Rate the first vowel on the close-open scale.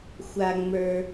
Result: open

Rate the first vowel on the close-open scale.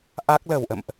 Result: open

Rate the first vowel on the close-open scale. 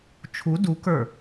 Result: close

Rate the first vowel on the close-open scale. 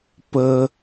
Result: mid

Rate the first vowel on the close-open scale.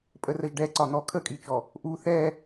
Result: mid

